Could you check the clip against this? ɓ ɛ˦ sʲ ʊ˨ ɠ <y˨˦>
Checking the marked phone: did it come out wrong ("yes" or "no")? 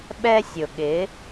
yes